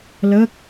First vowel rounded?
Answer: no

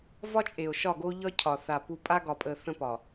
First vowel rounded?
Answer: yes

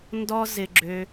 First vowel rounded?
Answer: yes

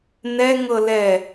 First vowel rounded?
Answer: no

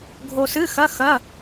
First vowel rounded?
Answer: yes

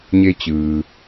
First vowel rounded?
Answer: no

